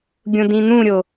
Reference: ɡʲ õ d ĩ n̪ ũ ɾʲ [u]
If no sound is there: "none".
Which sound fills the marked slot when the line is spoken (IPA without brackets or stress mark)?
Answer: o